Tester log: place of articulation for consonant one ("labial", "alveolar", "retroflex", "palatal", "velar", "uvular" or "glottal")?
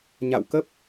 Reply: palatal